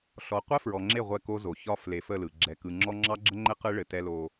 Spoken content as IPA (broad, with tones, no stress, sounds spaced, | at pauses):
ɬ ɔ˨ qʷ ɛ˦ f ɹ ɔ˨ ŋ͡ǁ e˦˨ ʁʷ ɛ˦˨ k o˦ z o˨ ç ɒ˦ f l e˨˦ f ə˦˨ l ɯ˨ ɡ͡ǁ ɛ˨ k ɯ˨ ŋ͡ǁ ɔ˦ ŋ͡ǁ ɑ˦ ɡ͡ǁ ə˦ ŋ͡ǃ ɘ˦ q ɯ˦ ɭ ɘ˨ t ɛ˦ l o˦